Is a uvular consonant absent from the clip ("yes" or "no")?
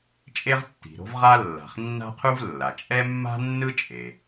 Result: no